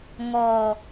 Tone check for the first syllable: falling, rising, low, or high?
low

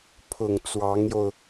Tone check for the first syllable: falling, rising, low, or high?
low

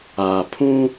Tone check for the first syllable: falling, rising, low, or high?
low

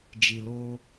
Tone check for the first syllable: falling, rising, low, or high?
low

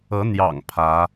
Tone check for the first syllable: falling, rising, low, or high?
rising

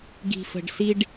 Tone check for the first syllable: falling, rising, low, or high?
low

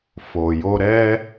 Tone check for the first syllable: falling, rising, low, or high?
low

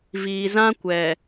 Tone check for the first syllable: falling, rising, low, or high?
low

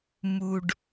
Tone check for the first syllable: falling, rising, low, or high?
low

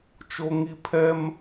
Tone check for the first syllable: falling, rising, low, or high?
high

